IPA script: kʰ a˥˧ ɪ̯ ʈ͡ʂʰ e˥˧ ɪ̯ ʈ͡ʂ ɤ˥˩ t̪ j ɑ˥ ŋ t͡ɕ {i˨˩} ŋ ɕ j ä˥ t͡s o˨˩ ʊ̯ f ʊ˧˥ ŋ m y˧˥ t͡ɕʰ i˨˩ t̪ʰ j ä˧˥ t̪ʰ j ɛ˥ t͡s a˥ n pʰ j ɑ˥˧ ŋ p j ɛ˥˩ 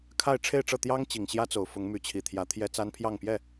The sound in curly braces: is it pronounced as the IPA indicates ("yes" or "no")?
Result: yes